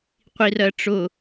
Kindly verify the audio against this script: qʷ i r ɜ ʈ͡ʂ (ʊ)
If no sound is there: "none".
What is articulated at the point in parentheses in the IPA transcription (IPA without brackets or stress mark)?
ʊ